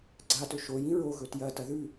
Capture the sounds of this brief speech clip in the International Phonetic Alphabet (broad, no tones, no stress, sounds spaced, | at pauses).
ɡ͡ǀ a t ɵ ʃ o j ĩ ɹ o ɣ ɵ t j ɐ t ɐ ð ʉ